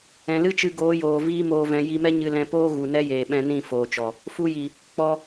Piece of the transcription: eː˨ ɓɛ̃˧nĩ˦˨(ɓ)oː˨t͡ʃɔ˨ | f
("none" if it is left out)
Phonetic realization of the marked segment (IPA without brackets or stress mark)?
f